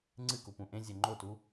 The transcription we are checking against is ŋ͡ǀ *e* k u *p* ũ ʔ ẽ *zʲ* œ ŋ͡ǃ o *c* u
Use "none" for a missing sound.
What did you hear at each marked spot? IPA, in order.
ɨ, p, zʲ, t

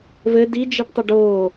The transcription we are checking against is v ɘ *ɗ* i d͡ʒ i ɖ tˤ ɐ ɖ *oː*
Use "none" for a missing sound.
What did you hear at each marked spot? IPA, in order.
d, oː

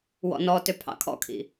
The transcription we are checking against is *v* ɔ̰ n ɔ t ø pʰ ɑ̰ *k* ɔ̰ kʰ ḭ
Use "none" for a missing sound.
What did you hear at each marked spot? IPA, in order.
w, kʰ

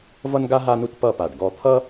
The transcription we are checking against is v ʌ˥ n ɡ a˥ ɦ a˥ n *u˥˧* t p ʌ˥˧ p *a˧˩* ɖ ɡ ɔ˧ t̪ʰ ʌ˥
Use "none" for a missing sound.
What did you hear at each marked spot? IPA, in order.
u˥˧, a˧˩

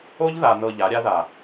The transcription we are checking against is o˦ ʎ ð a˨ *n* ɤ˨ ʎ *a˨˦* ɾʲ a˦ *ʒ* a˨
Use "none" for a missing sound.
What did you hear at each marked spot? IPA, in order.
n, a˨˦, ð

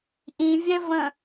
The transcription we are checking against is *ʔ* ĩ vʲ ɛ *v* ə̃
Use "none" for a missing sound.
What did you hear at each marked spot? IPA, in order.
ʔ, v

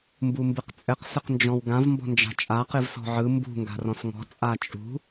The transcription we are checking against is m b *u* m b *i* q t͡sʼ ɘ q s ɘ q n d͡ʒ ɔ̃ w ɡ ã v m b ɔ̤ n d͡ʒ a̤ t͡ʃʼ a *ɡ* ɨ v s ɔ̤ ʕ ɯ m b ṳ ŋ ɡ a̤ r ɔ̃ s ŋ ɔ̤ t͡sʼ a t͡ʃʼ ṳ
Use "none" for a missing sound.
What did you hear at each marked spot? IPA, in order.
u, ɨ, q

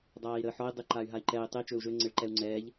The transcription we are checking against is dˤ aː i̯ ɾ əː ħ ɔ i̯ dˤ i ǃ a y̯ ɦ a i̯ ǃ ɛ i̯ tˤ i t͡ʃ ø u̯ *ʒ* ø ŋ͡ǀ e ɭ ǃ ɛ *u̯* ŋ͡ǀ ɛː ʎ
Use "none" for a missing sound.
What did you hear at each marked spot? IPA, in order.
ʒ, u̯

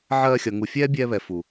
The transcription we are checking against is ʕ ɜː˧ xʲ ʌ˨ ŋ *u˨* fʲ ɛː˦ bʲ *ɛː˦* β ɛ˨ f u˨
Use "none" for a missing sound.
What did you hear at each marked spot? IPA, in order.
u˨, ɛː˧

